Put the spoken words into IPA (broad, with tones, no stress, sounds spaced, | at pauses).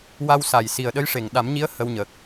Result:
w a˧ w s a˨˩ j s i˨˩ ə̯ ɗ ə˧˥ j ʂ e˨˩ ŋ ɗ a˨˩˦ m ɲ i˧˥ ə̯ h ə˧ w ɲ ə˨˩ k̚